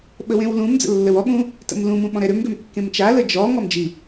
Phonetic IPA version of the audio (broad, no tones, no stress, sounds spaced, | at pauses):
ɓ ə w ẽ w l ũ m d͡z ə̰ lː ə w ɔ ɠ ũ | t ə̰ m l ũ m ũ ɓ ɔ̃ ɾ ɛ ɾ ø m ɡ ø m kː ẽ m t͡ʃ a l ə d͡ʒ ɔ ŋ ɔ m d͡ʒ i